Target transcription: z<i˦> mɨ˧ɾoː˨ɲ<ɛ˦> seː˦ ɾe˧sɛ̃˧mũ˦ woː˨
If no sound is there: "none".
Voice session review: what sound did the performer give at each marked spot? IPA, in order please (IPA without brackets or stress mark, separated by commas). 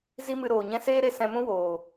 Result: i˦, ɛ̃˦